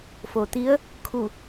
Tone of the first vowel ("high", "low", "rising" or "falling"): low